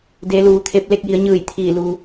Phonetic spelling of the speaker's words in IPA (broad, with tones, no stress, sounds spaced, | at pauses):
d e˩˧ l uː˩ t̪ʰ e˧ p̚ l e˥˨ k̚ j i˩˧ ə̯ ɲ ɯː˧˩ j t̪ʰ iː˧˩ l u˩